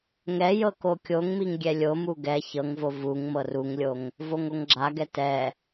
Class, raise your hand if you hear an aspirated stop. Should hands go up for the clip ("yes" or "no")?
no